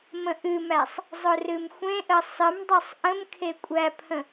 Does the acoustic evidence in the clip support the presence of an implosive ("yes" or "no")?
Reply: no